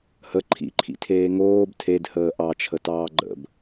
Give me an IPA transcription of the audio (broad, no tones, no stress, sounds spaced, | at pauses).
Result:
h ə ǃʰ ḭ ǃʰ ḭ tʰ eː ŋ oː b tʰ e d h əː ʔ ɑ t͡ʃʰ ə t ɑː ɡ͡ǃ ə̰ b